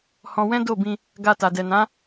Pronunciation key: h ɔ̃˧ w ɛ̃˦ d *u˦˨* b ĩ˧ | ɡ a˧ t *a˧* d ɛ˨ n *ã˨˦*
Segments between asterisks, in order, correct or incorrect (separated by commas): incorrect, incorrect, correct